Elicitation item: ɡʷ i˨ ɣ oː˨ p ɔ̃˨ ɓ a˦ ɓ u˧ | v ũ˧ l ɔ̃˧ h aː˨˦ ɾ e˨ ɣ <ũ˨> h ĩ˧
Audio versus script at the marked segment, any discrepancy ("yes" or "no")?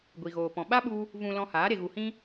yes